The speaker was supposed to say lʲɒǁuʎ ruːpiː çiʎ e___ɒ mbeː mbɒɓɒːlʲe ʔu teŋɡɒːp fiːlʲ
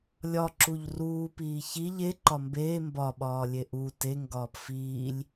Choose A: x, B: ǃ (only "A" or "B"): B